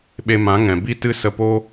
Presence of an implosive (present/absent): present